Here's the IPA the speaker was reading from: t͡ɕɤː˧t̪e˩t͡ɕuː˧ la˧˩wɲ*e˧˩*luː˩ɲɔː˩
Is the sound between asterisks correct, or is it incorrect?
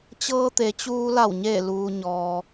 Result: correct